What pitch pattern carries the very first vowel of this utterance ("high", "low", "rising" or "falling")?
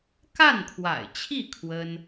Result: falling